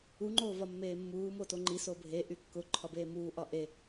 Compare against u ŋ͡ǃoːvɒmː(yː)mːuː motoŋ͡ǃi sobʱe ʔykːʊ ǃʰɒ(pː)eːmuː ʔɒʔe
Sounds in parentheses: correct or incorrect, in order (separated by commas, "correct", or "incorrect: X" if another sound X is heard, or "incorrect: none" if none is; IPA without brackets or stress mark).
incorrect: eː, incorrect: b